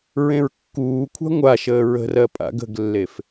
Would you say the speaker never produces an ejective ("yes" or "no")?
no